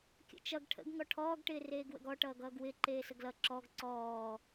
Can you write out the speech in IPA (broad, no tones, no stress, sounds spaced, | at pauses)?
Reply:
kʲ ə̰ t͡ʃ ʌ ɡ ʈʰ ə̰ ɡ ŋ ɔ ʈʰ ɔː ɡ ʈ ɪː r eː ɡ w ə̰ ɡ ɔ ʈ ʌː ɡ ʌː ɡ w ɪ ǃ eː s ə ɡ l ʌ ǁ ɔ ɡ ǀ ɔː